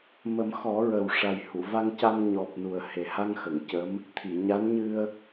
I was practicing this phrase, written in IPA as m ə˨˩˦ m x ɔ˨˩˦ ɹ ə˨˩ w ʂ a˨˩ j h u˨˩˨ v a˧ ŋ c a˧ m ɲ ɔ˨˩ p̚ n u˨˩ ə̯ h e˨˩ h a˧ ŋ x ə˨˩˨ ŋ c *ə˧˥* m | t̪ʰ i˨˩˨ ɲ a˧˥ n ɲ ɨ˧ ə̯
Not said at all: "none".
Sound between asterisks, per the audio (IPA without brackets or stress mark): ə˧˥